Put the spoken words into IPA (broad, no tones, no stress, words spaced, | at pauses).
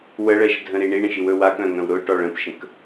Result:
wəɭɛʃdʱə̃ɾi ɳiɳə̃ʃiwɵ wakœ̃ŋœ̃w ɾʊʈɔɭ ə̃pʃə̃k